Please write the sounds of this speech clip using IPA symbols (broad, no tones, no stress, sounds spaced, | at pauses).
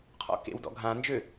qʰ ɔ̰ k ḛ w d ɔ̰ ɡʱ ã n d͡ʒ ø